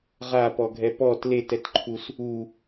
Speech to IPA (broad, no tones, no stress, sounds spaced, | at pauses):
ʁ a p ɔ ɡʱ ɛ p ɔ t l e t ɛ t ǃʰ u s | u